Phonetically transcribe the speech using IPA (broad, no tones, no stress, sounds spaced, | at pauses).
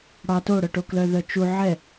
ɽ ɑ t o ɽ œ ʈ o k l œ ð œ t͡ʃ u ʕ ɛ